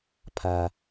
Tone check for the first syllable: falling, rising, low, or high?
low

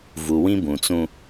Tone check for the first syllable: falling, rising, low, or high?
low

